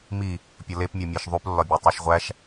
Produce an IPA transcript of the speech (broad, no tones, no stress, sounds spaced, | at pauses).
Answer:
m i | pʲ ɒ l e p mʲ ɒ mʲ æ ʃ ðˤ u p lː ɒ bʲ æ tˤ e ʃ ʁʷ æ ʃ